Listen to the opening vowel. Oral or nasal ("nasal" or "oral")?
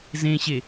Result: nasal